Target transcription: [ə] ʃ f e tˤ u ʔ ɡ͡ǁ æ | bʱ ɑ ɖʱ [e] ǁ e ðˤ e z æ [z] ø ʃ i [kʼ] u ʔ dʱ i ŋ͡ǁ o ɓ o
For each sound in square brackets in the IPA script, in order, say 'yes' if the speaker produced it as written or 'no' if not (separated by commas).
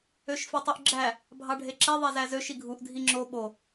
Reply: no, yes, yes, no